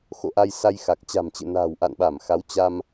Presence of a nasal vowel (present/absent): absent